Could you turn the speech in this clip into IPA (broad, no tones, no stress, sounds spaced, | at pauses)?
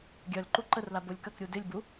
ɡʲ œ l ǃ u ǃ ə r l a b o lʲ k ɐ k ɾʲ u d ɪ lʲ b u